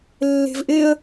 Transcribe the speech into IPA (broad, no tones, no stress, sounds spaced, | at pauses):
lː e̤ v ʔ ɪ ə̯